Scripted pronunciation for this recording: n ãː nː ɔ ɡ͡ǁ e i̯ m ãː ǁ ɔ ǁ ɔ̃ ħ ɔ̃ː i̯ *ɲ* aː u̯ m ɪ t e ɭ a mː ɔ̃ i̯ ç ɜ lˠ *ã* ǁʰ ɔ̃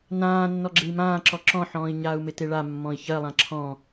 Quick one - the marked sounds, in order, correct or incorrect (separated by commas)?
correct, correct